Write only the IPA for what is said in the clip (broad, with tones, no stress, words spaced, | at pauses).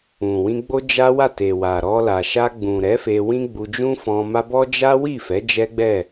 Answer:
ũ˨wĩ˧ ɡ͡bo˦d͡ʒa˦wa˦˨ te˨wa˨ ɾɔ˧la˨ ʃa˧ɡ͡bũ˨ɾɛ˨˦ fe˧wĩ˦ɡ͡bu˧d͡ʒũ˦ fɔ̃˧ma˦bɔ˦ d͡ʒa˦wi˦˨fɛ˨˦ d͡ʒɛ˦ɡ͡bɛ˦˨